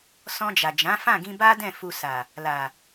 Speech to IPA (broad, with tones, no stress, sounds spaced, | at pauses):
s ɔ̃˧ d͡ʒ a˨ d͡ʒ ã˨˦ f ã˦˨ ɡ ĩ˧ b a˦ d ɛ̃˦˨ f u˧ s a˨ | l a˨